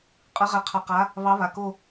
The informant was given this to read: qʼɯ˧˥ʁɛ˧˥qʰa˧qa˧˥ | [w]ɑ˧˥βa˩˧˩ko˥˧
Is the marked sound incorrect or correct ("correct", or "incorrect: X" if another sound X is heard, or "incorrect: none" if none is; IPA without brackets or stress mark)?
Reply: incorrect: β